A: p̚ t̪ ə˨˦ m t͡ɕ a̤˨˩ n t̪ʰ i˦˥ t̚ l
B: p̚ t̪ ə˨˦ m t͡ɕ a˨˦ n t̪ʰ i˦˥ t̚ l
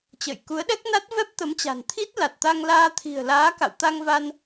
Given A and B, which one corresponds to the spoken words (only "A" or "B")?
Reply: A